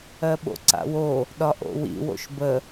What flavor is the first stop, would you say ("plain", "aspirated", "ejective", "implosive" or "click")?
implosive